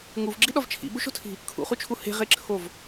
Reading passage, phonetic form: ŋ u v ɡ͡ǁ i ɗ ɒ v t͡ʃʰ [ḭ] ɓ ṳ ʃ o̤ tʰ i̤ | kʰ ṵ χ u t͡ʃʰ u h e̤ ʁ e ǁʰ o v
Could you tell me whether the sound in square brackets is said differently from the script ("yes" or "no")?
no